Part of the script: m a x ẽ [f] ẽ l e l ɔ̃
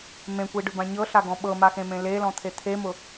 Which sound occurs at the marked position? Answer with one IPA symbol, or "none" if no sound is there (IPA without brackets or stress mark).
m